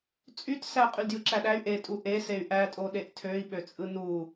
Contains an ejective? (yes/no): yes